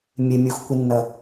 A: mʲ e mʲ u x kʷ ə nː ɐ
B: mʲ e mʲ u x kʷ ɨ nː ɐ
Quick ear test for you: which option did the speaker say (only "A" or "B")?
B